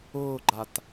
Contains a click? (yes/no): yes